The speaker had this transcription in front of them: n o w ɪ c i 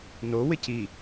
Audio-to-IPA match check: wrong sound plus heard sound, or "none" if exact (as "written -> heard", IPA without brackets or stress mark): none